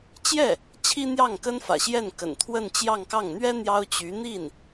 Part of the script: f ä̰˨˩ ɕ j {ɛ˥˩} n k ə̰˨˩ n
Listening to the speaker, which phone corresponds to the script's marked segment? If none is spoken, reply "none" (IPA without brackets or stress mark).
ɛ˥˩